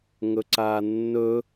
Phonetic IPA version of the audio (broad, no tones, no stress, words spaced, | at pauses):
ŋɵǀaːnːɵ